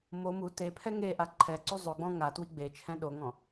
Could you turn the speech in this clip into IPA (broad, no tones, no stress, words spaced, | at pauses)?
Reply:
mo mu tepʰɛ ŋeʔa ǃʰɛǀu zˤoɡ͡bɔ̃ ŋatwi ɡ͡be t͡ʃʰɛ̃ɗoŋɔ̃